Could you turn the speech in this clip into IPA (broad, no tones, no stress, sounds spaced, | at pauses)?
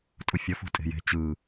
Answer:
tʼ u fʲ ʌ f ṳ tʼ e̤ j e̤ t͡ɕ ɯ